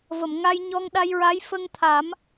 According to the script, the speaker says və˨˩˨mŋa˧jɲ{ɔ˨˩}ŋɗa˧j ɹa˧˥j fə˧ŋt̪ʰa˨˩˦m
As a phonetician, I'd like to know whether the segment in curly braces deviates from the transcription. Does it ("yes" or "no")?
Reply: yes